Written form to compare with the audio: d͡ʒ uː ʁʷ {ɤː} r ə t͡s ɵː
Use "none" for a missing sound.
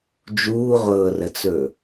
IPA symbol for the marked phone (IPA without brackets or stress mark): ɤː